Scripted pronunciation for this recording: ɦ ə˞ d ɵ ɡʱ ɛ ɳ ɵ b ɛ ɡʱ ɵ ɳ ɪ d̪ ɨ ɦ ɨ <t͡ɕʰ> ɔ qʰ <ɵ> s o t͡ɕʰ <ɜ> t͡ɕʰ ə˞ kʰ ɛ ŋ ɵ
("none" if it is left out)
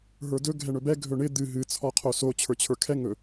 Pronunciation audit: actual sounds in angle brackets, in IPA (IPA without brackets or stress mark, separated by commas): t͡sʰ, o, ə˞